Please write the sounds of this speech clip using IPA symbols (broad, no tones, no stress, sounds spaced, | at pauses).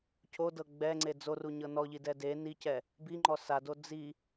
cʰ o d ɤ ɡ͡b ɛ ŋ͡ǀ e d͡z o r u ɲ ɤ n ɔ ʎ i d ɛ d e n i c ɛ | b i ŋ͡ǃ ɔ s a d o d͡z i